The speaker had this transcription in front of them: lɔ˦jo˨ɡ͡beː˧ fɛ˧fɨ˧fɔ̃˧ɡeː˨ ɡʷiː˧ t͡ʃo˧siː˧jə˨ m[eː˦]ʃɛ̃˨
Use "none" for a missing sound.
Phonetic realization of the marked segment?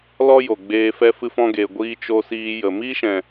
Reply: iː˦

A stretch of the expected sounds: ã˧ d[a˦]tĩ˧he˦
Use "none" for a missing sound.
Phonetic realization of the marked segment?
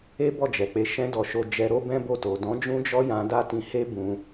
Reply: a˦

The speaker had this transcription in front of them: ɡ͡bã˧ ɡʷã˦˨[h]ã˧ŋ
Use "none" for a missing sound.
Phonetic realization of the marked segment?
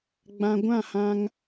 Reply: h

